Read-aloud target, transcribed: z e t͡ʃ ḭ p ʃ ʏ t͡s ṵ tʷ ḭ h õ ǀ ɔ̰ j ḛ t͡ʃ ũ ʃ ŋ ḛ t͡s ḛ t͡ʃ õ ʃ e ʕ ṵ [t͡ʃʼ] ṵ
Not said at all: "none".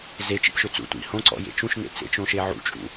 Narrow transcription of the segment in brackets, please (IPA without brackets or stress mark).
t͡ʃʼ